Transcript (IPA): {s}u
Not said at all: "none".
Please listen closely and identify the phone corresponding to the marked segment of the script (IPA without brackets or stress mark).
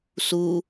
s